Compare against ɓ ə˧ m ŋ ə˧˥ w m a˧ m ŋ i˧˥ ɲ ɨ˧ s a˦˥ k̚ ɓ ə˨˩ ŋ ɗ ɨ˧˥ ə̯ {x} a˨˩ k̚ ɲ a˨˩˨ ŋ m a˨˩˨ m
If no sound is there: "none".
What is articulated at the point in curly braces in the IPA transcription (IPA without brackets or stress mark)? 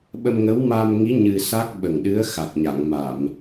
x